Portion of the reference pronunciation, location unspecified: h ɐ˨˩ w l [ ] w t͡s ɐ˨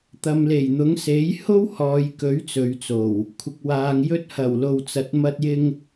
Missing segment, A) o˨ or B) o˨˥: A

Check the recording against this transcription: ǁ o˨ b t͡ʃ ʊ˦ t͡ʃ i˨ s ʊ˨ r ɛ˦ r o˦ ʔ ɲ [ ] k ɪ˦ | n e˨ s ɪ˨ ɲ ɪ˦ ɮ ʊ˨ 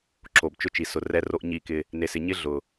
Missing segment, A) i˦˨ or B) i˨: A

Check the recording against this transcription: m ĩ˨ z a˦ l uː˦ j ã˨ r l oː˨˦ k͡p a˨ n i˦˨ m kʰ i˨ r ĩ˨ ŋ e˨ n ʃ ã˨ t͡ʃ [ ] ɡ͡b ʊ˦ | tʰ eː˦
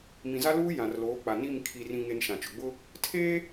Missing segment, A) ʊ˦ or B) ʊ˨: B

